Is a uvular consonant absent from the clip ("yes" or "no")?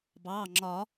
yes